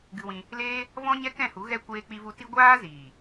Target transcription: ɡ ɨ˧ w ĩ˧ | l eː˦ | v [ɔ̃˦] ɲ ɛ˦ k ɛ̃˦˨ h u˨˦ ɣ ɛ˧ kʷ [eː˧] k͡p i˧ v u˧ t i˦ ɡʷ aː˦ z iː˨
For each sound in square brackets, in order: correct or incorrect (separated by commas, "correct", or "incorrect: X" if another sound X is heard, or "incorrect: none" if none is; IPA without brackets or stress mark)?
correct, correct